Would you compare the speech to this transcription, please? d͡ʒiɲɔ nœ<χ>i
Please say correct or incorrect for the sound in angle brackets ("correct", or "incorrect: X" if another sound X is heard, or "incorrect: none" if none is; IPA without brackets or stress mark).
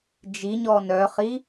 correct